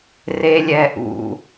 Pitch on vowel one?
low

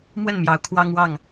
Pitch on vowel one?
falling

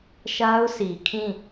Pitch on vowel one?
high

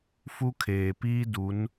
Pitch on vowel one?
high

